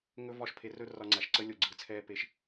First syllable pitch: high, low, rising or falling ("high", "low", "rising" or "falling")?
high